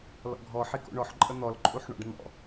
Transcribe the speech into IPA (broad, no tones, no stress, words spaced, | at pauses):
lɔ̰ɡʱɔ ħiko̰ɳɔħ ǃʼən̪ɔl ǃʼuħɳɔ̰ɖn̪ɔ̰